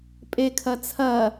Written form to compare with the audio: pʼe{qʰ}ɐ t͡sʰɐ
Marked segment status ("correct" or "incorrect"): incorrect